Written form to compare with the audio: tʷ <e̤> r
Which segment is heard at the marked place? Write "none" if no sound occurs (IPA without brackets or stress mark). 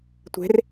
e̤